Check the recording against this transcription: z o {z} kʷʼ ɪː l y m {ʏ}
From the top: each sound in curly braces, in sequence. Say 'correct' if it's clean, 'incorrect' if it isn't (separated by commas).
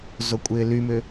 incorrect, correct